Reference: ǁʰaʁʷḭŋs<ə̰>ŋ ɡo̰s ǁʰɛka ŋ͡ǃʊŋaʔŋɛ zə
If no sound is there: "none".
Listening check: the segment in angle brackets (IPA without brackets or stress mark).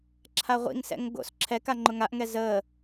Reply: ɛ̰